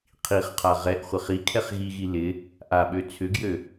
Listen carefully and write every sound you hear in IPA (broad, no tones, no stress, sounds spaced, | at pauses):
qʰ i χ qʰ a ʁ ɛ ʔ χʷ ɪ χ i kʰ ɛ χ ɣ i ɣ i l ɪ | ʔ a ɓ ø t͡sʰ ʏ ɡ j ø